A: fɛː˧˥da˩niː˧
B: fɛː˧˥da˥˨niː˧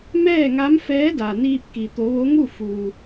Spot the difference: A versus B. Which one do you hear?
A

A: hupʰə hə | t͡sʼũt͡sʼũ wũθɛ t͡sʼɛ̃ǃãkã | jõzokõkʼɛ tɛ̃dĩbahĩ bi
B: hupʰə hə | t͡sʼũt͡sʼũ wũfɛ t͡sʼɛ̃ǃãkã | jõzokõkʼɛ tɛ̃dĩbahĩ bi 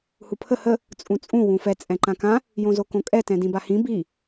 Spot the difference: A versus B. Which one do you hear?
B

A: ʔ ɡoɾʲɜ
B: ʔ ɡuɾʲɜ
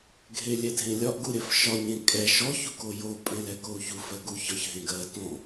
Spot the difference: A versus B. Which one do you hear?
B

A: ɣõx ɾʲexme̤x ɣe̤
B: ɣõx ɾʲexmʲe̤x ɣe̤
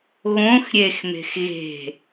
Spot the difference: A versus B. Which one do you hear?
A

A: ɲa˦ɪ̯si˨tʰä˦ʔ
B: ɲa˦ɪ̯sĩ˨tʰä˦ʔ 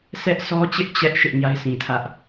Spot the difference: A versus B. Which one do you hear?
B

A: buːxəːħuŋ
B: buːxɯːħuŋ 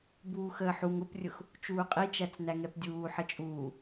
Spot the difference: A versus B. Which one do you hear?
A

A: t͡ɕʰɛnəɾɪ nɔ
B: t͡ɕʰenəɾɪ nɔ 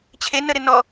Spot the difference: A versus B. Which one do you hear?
B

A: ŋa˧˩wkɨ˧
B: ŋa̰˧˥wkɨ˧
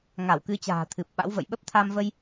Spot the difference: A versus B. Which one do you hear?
A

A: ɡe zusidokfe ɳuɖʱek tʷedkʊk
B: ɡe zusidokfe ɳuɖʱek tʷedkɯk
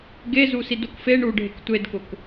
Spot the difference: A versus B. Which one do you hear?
A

